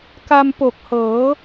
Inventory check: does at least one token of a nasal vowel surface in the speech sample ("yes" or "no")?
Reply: no